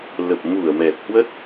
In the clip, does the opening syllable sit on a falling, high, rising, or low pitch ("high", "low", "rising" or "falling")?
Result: low